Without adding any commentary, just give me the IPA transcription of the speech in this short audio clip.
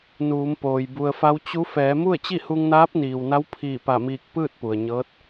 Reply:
n uː˩˧ m p oː˩ j b u˩ ə̯ f a˧˥ w t͡ɕ u˧˥ f ɛː˩˧ m u˥˨ ə̯ t͡ɕ i˥˨ h u˧ ŋ n aː˧˥ p̚ n iː˩ w n a˧˥ w pʰ iː˧˩ p a˧˩ m iː˧˩ k̚ p ɯː˥˨ t̚ p u˩ ə̯ ɲ ɤː˧˥ t̚

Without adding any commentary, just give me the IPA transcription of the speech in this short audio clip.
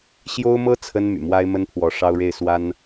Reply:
ɕ j o˥ ʊ̯ m ɤ˥ t͡sʰ ə˥ n m y̰˨˩ m w a˥ ɪ̯ m ə˥ n pʰ w ɔ˧˥ ʂ ɑ˥ ʊ̯ ɻ e˥˩ ɪ̯ s w a˥ n

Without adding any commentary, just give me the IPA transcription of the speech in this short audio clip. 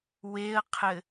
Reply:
w e ə̯ qʰ ɘ

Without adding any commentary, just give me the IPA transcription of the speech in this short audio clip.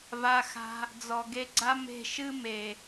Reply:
v a˧ x a̤˧ | d͡z ɔ˨ ɡ e˧ ɡ͡ǀ a˦ m e̤˦˨ ʃ ɨ˦ m e˨

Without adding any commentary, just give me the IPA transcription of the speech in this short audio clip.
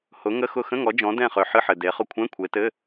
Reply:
h ʊ˨˦ ŋ ə˧˥˧ x ʊ˦˨ x ə̃˧˥˧ ŋ ɔ˨˦ d͡ʒ ɔ̃˨˦ d ɛ̃˦˨ χ ø˨ ħ ɨ˧˥˧ ħ ɘ˨ d e˨˦ χ ʊ˦˨ kʷʰ ɛ̃˧˥˧ kʷʰ e˨˦ t ɘ˧˥˧

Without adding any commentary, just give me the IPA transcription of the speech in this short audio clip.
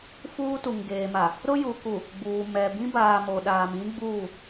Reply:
f uː˦ t u˨ ŋ ɡ eː˨ m a˨ | ɾ ʊ˦ j u˨ k u˨ | ɡ͡b uː˨ m ɛ˨ b ĩ˦ b aː˨ m o˨ ɗ aː˨ m ĩ˦ ɡ͡b uː˦˨

